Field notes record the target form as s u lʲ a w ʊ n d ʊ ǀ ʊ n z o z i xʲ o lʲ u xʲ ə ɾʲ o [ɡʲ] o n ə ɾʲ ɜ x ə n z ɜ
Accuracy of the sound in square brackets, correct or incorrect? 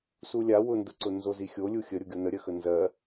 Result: correct